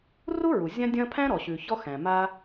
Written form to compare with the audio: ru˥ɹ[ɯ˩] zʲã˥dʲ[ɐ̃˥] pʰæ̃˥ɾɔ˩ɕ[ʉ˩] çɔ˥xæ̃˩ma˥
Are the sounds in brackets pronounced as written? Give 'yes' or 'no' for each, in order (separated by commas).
no, yes, yes